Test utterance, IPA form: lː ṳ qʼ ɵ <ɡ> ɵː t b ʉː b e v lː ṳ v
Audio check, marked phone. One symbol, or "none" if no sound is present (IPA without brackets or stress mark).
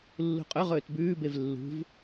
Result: ʁ